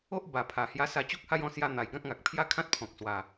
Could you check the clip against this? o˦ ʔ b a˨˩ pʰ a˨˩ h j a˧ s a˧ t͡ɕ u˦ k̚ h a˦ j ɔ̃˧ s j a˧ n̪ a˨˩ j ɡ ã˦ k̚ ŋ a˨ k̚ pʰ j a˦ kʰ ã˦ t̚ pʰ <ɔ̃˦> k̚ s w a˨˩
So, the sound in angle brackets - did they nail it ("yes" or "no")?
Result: no